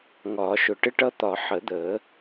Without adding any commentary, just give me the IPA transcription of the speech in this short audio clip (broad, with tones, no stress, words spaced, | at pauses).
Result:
ŋɒː˨˩˦ʃʊ˨˩˦ ʈɪ˦ʈʌ˦t̪ɒ˨˩˦ ħə˨˩˦d̪əː˨˩˦